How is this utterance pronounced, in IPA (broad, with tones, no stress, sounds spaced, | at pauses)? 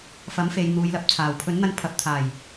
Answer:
f ɐ˨˥ m f e˨ j n̪ uː˨˧ j l ɐ˨˥ p̚ t͡sʰ aː˨˩ w pʰ ɵ˨˥ n n̪ ɐ˧ n pʰ ɐ˨˥ p̚ t̪ʰ aː˨˩ j